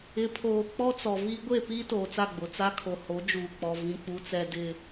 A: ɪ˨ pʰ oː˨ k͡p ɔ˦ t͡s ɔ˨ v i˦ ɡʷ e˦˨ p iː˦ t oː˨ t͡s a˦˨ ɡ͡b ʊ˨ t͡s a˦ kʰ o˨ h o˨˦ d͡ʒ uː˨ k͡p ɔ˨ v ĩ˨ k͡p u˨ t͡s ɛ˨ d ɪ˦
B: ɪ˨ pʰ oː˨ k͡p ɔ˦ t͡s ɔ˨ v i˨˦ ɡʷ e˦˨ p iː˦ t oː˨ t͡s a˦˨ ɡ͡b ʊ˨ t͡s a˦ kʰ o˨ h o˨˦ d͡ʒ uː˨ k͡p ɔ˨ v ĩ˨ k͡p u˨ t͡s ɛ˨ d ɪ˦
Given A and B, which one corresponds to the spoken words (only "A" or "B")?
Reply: A